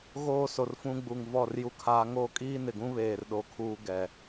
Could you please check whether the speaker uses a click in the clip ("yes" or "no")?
no